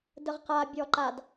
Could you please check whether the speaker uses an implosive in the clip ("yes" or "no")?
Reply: no